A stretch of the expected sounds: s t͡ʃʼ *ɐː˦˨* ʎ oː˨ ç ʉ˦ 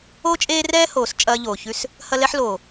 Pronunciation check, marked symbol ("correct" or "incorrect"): incorrect